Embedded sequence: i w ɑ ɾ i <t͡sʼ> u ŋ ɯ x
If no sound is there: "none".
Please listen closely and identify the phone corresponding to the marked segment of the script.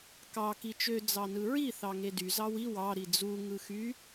d͡z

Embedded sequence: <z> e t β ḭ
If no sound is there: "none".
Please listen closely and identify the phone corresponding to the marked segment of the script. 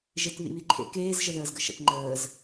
ʒ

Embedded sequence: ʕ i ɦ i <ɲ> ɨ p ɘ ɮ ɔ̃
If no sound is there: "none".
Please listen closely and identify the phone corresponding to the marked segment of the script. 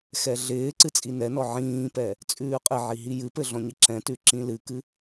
j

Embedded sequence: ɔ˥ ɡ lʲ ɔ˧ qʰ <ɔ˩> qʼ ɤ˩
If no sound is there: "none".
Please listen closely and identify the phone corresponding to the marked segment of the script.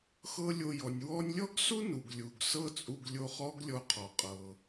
ɔ˩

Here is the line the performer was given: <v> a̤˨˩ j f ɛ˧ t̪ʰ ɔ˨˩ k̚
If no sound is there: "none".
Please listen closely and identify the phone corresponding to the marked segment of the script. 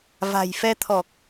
v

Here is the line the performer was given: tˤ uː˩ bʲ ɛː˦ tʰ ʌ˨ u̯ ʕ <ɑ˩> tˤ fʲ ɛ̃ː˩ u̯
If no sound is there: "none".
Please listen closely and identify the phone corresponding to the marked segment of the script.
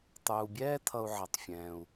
ʌ˩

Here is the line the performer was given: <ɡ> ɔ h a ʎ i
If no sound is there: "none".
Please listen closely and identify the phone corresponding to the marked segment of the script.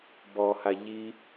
b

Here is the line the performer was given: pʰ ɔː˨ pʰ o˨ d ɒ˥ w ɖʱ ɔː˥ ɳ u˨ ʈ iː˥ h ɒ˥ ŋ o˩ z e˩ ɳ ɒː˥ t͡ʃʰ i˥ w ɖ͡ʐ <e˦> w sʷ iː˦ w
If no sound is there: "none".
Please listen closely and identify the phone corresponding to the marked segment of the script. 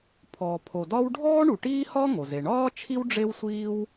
e˦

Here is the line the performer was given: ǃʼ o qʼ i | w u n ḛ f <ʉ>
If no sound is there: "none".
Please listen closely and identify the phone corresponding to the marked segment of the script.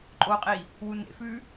ʉ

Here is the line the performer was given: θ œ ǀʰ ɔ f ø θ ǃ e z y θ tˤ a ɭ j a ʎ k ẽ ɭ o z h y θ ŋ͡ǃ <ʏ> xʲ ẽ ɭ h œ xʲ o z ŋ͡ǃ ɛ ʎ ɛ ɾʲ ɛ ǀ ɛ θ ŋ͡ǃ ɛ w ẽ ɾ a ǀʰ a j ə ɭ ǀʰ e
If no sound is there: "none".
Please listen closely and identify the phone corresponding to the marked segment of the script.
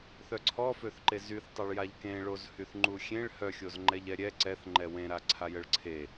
u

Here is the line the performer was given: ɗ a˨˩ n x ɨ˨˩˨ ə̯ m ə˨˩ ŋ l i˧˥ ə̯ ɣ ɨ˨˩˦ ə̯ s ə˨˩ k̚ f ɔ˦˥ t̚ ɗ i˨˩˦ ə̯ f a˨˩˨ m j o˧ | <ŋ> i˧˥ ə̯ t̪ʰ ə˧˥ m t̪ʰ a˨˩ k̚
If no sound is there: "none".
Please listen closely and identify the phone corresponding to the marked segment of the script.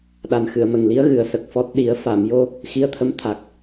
x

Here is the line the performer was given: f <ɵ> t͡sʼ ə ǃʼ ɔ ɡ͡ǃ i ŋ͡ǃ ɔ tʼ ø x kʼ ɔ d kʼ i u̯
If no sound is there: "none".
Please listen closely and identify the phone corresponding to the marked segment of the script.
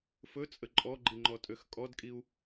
ɵ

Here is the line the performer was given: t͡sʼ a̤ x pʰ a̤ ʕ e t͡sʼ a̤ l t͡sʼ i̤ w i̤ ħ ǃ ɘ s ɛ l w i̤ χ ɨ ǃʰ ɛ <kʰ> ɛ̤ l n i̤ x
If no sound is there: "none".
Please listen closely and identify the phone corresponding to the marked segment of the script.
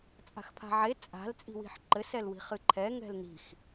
ŋ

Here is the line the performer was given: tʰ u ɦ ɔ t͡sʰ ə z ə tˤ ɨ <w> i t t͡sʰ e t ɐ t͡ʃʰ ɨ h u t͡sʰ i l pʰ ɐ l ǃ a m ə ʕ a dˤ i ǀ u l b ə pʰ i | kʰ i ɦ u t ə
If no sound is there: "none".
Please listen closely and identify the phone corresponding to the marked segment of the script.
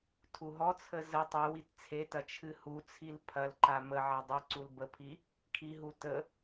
w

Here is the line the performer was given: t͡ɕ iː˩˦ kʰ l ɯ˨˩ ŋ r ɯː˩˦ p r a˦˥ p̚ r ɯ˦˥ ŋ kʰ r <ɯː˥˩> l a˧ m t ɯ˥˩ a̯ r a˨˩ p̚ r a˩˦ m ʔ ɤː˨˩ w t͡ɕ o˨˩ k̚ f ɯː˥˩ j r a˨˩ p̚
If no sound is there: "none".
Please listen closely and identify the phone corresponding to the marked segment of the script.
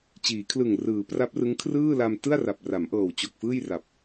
ɯː˥˩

